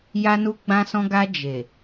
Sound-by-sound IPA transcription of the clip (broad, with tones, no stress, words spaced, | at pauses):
ja˧nu˧ ɡ͡bã˧sɔ̃˧ɡa˧ d͡ʒe˨